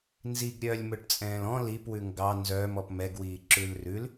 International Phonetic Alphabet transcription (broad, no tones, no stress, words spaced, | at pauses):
nziɡɾʲœːlʲmɵʈt͡sʼɛ̃ːl ɔ̃ lipwʉ ŋɡɑ nzœːmɔp mɛɡwiː ǁʉlrʉl